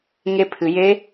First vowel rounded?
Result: no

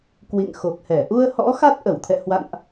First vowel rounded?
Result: no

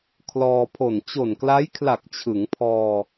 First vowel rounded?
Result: yes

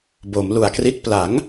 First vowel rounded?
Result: yes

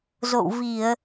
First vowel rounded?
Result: yes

